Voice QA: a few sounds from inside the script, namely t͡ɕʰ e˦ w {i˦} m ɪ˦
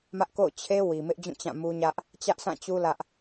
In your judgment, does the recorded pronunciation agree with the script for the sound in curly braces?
no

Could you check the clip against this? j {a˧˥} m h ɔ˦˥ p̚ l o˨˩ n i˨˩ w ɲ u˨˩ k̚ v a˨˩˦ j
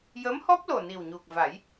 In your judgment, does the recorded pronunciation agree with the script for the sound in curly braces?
no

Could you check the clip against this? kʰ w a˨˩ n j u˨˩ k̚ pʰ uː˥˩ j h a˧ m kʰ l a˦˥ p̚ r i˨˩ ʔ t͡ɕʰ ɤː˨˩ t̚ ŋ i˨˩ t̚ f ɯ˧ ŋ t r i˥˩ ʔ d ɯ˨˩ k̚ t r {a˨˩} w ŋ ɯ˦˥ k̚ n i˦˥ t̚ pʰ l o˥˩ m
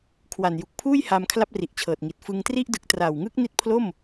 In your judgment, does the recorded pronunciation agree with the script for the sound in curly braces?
yes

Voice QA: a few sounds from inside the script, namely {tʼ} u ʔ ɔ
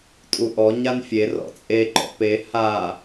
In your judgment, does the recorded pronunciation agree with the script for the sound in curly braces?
yes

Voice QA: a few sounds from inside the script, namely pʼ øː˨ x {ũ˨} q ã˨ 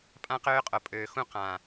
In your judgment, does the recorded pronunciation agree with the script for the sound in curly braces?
no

